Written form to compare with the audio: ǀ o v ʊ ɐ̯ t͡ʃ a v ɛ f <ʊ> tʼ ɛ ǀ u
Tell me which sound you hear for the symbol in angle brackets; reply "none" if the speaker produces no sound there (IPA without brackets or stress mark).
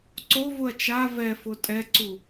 ʊ